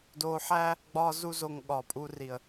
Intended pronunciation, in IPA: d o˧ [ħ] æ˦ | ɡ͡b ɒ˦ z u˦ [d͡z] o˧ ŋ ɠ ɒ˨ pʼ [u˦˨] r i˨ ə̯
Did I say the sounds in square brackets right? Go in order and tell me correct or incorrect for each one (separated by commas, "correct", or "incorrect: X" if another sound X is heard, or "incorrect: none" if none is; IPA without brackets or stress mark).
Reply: correct, incorrect: z, incorrect: u˧